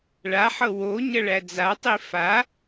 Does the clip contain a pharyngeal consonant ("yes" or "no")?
yes